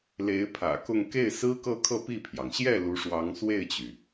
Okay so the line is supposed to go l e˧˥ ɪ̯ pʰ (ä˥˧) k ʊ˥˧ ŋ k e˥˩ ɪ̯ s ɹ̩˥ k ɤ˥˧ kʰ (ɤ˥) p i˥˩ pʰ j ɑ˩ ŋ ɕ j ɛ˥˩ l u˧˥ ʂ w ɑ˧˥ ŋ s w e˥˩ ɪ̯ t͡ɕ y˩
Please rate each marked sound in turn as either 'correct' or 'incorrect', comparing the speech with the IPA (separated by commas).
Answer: incorrect, incorrect